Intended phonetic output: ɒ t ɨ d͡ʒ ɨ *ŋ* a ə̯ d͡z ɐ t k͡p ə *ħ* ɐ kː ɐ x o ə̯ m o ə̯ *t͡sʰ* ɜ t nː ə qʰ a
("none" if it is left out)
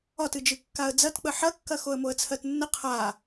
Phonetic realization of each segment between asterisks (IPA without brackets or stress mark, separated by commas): kː, ħ, t͡sʰ